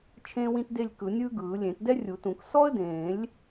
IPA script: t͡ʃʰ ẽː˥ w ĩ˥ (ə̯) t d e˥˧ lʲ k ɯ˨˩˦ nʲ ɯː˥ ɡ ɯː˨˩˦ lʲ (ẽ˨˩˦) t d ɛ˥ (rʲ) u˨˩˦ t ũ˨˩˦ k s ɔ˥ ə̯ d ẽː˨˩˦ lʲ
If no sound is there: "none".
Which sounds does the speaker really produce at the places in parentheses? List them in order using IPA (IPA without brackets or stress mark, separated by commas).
none, ẽ˨˩˦, rʲ